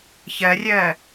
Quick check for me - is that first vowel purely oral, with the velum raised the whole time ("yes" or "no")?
yes